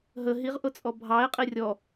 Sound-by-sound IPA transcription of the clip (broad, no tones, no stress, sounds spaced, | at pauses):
ɦ ə ɦ i ʁ ʔ ʊ t͡sʼ ɔ bʱ ɑ e̯ qʼ i rʲ ɔ